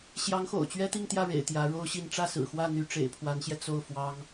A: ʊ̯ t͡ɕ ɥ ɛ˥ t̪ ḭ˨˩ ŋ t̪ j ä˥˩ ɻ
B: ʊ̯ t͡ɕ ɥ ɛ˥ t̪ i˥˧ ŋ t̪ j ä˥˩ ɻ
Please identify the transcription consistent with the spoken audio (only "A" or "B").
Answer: B